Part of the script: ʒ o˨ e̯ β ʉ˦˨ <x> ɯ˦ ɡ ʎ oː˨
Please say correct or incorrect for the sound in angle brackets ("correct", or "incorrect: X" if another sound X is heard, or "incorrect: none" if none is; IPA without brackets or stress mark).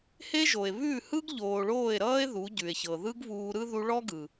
incorrect: h